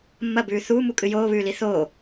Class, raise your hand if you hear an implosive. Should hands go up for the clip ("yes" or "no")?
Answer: no